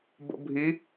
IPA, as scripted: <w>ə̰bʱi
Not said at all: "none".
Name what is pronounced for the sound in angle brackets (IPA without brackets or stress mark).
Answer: b